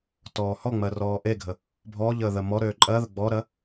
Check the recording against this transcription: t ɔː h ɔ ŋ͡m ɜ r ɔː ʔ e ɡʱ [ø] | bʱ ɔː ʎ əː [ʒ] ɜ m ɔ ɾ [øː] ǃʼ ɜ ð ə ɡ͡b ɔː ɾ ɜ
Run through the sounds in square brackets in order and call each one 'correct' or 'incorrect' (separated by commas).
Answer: incorrect, incorrect, correct